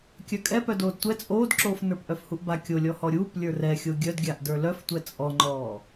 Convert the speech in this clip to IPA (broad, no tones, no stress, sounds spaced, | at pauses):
kʲ œ kʼ ɛ p œ d oː d tʷ ɛ t͡sʼ oː d ǁ oː f n ə˞ p ʔ œ f h u ʔ b a kʲ o lʲ ɔ h ɔ ɾʲ uː p lʲ ə˞ r ɛ xʲ o ɡʲ œ d ɡʲ a ʔ d ə˞ l œ f tʷ ɛ t͡sʼ ɔ ŋ͡ǃ ɔː